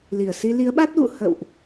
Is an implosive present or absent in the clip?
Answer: present